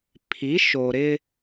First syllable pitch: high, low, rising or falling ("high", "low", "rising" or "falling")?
rising